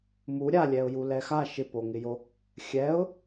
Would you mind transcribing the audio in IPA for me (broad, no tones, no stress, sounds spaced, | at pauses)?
m u ɾʲ a lʲ ɛ ʊ̯ j u l ɛ x a ʃ ɪ p o ŋ ɪ j o | xʲ ɛ ʊ̯